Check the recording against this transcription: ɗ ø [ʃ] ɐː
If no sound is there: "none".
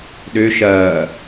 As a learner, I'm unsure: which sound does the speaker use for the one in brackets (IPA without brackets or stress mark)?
ʃ